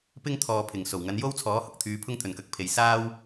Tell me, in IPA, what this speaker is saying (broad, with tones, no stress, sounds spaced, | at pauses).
p ɪ˥ ŋ t̪ʰ ɔː˨ pʰ ɪ˨˩ ŋ s o˨˩ w ŋ ɐ˨˧ n j o˥ w t͡sʰ ɔː˨˥ h ʊ˨ k̚ t̪ʰ yː˨˧ pʰ ʊ˥ ŋ t̪ʰ ɵ˨ n k ɐ˨˥ k̚ pʰ e˨˧ j s aː˥ w